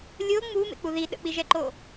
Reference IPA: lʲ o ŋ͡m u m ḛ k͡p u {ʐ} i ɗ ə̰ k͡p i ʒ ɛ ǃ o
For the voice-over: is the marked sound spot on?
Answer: no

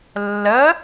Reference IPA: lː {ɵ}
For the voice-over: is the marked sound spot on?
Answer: no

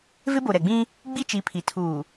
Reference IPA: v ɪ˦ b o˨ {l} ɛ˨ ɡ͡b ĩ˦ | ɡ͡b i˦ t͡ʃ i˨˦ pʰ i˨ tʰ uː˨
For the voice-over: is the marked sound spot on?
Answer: no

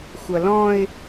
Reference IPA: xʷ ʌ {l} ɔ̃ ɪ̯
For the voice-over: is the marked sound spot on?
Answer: yes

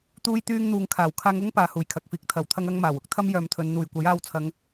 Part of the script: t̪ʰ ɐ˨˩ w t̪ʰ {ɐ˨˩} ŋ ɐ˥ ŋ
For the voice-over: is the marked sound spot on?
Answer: no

